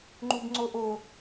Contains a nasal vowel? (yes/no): no